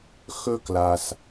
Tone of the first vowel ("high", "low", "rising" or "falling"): high